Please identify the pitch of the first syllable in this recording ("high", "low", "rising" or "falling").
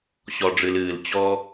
low